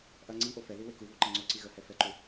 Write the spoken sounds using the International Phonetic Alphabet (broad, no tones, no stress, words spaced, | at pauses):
ʔɐ ŋ͡ǀi ʔofɛði wekuβo ǃɐŋ͡ǀoǀi ɣəhɛ fɛǃu